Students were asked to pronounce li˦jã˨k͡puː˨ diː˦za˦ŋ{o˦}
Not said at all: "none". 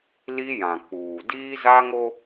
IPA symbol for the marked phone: o˦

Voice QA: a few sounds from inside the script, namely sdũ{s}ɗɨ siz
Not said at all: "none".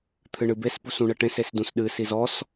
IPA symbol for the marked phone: s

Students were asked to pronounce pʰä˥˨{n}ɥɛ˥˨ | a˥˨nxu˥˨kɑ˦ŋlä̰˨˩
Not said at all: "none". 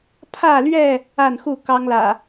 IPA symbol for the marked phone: l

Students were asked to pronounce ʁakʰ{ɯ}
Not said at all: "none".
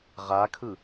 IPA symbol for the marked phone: ɯ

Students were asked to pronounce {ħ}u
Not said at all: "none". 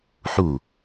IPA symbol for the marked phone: ħ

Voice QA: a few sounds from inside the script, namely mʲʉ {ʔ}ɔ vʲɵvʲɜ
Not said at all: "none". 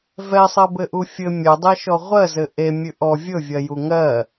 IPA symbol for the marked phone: ʔ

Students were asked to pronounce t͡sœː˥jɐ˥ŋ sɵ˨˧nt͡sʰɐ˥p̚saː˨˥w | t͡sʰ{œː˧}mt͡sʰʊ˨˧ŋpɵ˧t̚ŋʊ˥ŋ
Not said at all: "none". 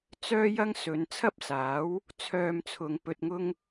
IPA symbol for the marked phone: œː˧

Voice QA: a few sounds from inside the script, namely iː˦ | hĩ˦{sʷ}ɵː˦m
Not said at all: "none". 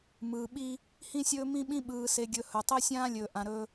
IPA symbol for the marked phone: sʲ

